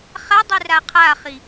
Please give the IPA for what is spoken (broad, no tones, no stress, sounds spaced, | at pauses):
χ a dˤ e r a qʰ a χ i